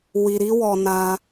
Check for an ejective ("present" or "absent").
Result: absent